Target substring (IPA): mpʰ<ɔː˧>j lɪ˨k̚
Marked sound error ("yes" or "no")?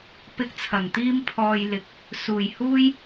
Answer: no